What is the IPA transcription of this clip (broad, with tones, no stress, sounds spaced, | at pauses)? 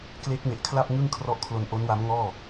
k l e˦˥ k̚ m e˨˩ ʔ kʰ l a˥˩ p̚ ŋ ɯ˥˩ ŋ kʰ r ɔ˦˥ ʔ kʰ l o˧ n ʔ o˦˥ n w a˦˥ m ŋ ɔː˥˩